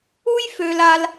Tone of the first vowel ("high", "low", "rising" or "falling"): high